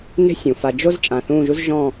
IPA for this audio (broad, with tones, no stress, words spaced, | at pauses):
ne̤˥sʲũ˩˧fa˧ d͡ʒo˥z t͡ʃʼã˧˩θũː˥˧ʒu˥z ʒɔ̃˥˧